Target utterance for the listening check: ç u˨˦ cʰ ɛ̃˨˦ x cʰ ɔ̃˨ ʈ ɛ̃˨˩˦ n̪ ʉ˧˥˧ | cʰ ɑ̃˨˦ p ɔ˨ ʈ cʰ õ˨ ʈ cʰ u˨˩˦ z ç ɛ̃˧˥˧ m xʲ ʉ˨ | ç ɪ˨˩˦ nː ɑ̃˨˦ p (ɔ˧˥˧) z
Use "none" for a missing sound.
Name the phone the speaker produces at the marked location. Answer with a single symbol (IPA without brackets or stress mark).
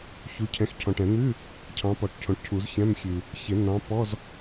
ɔ˧˥˧